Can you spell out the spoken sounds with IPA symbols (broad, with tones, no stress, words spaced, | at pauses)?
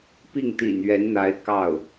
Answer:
pi˥˩ŋt̪ḭ˨˩nɥɛ˧˥nn̪a˧˥ɪ̯ kɑ˥˩ʊ̯